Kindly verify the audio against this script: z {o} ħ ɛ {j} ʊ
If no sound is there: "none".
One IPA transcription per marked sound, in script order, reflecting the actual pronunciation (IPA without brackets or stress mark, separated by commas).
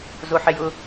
o, j